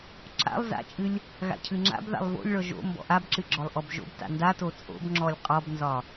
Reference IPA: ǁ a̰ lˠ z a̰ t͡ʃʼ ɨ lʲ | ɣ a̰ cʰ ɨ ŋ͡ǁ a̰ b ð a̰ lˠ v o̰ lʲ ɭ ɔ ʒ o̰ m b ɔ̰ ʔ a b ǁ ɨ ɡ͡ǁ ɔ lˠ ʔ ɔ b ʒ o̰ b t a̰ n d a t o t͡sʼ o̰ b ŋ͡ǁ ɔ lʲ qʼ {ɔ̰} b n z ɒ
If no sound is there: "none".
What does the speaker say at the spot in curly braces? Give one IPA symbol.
ɔ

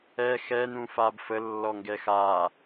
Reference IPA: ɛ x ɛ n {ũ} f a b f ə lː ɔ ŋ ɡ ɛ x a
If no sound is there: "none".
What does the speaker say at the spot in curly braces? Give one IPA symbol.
ũ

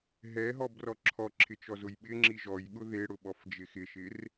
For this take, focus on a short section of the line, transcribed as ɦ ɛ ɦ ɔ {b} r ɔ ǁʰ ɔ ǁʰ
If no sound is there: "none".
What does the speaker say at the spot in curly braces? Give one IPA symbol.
b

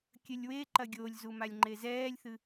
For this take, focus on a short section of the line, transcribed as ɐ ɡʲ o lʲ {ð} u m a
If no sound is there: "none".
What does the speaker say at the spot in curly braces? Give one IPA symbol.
z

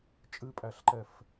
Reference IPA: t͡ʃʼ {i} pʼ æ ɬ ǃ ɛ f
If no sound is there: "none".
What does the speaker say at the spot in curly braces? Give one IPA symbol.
ɨ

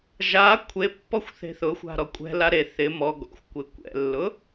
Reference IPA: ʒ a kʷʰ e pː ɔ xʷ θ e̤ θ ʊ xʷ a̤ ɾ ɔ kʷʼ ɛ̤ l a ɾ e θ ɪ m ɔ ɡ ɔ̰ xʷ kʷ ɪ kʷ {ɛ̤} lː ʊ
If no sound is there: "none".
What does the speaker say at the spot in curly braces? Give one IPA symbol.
ɛ̰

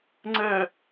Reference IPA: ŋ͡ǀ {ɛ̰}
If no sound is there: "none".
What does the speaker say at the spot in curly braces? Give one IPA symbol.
ɛ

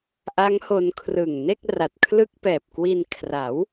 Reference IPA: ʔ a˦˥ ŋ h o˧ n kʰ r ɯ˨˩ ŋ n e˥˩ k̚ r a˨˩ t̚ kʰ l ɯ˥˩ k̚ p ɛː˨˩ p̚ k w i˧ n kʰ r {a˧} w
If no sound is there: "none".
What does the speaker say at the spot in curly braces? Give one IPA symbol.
a˩˦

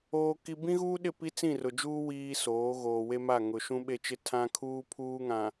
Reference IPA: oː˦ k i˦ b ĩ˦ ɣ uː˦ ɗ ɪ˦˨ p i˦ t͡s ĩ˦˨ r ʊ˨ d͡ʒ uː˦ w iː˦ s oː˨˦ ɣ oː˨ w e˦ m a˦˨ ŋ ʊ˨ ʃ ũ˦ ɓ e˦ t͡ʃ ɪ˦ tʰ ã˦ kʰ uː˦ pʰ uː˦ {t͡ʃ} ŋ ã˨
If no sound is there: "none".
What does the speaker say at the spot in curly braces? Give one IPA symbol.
none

